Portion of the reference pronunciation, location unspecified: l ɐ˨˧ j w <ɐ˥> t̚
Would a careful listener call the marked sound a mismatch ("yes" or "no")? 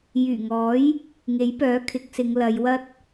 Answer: no